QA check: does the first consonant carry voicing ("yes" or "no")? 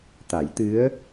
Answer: no